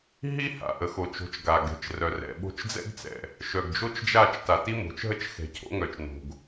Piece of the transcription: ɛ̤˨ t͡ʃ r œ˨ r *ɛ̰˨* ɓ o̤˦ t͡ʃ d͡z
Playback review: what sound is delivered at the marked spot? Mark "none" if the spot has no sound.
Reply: ɛ̰˨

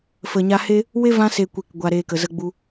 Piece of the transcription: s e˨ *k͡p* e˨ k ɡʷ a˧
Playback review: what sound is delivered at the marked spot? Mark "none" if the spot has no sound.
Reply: kʷ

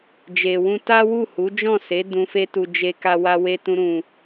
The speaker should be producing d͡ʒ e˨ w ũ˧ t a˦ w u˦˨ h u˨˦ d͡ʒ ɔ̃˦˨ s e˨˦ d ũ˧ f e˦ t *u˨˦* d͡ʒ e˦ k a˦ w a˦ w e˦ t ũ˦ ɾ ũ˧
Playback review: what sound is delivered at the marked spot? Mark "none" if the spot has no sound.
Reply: u˧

